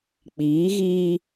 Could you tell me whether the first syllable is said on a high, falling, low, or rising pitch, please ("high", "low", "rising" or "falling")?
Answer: rising